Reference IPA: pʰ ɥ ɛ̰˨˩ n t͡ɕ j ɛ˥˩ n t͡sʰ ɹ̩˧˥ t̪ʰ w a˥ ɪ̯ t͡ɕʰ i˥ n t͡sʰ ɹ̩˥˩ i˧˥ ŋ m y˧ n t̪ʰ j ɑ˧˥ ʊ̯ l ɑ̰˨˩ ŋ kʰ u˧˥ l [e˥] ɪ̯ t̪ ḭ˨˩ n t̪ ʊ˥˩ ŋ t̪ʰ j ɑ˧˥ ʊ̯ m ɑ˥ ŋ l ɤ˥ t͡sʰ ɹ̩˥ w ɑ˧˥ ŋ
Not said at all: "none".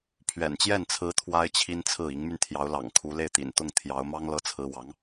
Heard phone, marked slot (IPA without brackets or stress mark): e˥˩